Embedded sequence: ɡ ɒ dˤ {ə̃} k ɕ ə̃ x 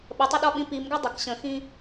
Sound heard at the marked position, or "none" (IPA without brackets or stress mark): ə